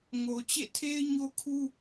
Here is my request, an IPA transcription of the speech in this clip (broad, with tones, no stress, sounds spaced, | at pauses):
ŋ o˨ t͡ɕ ḛ˦˨ tʰ e˦ ɪ̯ ɲ o˦ kʰ u˦